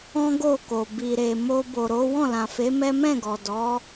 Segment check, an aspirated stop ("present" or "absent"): absent